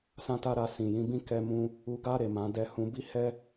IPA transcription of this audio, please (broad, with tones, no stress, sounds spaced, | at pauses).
s ã˦ t a˦ ɾ a˧ s ĩ˨ j ĩ˨˦ b ĩ˦ k ɛ˧ m ũ˧ | u˧ ɡ a˦ ɾ e˦˨ m ã˨˦ d ɛ˧ h ũ˧ b i˦ h ɛ˦